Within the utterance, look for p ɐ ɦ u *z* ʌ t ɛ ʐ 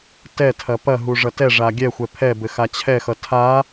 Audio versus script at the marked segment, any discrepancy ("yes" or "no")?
yes